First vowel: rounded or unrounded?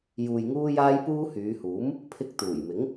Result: rounded